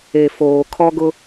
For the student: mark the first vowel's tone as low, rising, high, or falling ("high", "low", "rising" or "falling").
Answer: low